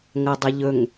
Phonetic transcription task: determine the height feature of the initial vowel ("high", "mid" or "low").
low